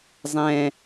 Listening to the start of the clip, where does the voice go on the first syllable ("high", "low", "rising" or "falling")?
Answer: low